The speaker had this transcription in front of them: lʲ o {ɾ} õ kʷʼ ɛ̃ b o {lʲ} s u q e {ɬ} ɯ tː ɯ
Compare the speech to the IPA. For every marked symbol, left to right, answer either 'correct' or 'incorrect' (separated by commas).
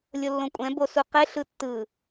incorrect, incorrect, correct